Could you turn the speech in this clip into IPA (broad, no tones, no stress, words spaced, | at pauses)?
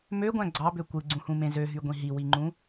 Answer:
møɡʷæ̃ ɡ͡ǀɑbø kʷɯɡ͡ǀũhũmẽ zøɦyɡʷĩ ɦiwiŋ͡ǃũ